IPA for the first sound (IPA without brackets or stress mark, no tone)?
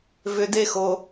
v